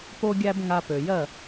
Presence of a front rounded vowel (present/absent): present